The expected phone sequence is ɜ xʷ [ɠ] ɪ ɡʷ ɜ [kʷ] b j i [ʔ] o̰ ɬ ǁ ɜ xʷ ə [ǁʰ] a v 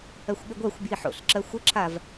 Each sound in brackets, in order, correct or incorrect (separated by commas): correct, incorrect, incorrect, correct